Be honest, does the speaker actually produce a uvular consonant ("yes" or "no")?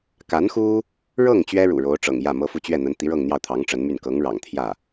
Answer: no